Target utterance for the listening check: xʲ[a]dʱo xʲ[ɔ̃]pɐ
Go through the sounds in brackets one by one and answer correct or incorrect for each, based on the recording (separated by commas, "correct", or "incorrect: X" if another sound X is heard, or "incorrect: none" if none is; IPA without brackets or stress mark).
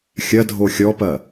incorrect: ɐ, incorrect: ɔ